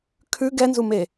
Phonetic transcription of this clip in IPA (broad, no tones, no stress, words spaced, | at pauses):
kʰʉ ɡɛnzume